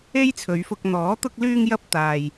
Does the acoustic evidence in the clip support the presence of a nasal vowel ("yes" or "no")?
no